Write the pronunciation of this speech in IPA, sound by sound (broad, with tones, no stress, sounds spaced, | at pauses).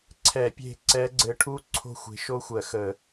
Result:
ǀʰ ɛ˧˩˧ pʲ e̤˦˨ ǀ ɛ˧˥ ɡ͡ǀ ɘ˧˥ ʈʰ u˥ ǀʰ o̤˦˨ xʷ e̤˧˥ ʃ o˥ xʷ ɜ˧˩˧ x ə˧˩˧